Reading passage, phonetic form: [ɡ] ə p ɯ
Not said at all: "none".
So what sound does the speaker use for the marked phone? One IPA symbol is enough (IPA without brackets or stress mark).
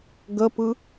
ɡ